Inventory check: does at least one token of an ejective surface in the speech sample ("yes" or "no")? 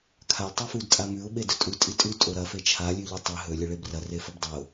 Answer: yes